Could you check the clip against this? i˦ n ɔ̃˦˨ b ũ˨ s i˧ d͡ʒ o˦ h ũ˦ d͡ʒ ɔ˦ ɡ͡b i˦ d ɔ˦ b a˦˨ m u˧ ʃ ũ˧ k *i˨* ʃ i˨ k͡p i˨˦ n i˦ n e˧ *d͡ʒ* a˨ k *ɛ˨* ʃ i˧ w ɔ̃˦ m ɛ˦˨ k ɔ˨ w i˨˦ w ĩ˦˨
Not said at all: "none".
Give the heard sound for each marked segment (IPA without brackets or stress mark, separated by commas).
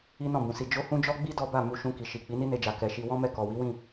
i˨, d͡ʒ, ɛ˨